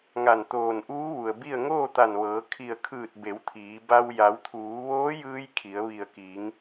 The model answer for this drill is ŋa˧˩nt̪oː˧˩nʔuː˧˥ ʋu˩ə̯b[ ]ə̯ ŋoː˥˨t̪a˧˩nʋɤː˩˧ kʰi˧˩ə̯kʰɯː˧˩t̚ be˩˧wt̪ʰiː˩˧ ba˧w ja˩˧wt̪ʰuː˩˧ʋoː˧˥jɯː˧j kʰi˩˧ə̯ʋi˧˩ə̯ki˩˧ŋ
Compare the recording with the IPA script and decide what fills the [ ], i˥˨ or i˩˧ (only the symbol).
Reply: i˥˨